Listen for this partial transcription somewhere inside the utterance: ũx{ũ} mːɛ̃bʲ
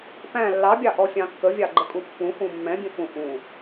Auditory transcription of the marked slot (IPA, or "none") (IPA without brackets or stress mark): ũ